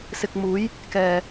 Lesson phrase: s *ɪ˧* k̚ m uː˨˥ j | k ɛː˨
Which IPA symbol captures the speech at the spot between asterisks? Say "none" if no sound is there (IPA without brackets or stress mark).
ɪ˧